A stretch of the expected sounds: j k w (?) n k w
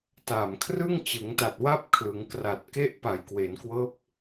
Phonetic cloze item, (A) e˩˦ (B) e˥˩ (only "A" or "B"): A